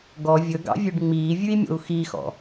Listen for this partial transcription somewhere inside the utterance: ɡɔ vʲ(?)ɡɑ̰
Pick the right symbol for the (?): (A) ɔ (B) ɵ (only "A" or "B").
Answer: B